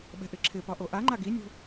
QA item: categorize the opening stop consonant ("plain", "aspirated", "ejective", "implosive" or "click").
implosive